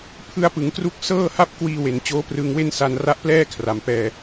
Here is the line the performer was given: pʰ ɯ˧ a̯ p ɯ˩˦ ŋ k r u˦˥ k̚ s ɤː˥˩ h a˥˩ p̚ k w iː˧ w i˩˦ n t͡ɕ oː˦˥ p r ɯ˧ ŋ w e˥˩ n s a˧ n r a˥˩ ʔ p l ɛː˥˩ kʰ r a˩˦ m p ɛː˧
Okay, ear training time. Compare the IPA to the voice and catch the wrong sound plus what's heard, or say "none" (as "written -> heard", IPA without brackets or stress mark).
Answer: i˩˦ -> e˩˦